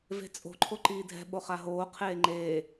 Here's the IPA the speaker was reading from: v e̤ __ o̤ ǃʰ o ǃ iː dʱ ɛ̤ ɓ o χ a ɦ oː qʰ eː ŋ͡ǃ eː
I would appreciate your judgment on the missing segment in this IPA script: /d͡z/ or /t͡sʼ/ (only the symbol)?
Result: t͡sʼ